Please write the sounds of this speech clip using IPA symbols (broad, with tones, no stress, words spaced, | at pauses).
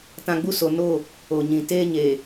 tã˦ ɡ͡bu˦so˨ no˦˨ | o˨ɲĩ˨ teː˦ɲeː˨